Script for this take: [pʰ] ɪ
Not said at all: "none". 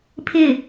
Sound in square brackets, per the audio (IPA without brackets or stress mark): pʰ